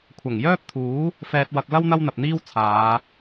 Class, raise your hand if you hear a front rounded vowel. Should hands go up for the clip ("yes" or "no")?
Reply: yes